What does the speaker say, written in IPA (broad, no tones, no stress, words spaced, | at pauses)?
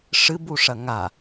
ʂɨbuʂɐ ŋa